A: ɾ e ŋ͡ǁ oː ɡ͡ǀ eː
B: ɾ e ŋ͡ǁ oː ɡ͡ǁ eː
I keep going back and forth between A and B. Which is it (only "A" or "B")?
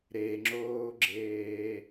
B